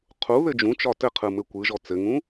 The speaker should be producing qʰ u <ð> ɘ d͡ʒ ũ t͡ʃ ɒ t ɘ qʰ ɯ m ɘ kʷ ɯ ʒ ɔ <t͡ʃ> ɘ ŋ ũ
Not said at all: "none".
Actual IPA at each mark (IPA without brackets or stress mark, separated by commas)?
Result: ð, t͡s